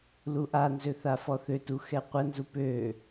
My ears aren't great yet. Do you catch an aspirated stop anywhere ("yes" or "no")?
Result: no